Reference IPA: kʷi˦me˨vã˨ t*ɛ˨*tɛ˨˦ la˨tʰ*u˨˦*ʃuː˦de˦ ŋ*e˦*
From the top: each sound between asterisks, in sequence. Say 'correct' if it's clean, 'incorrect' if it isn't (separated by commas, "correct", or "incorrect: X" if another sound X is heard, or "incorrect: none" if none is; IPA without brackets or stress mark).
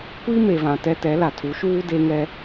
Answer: incorrect: ɛ˦, correct, incorrect: ɛ˦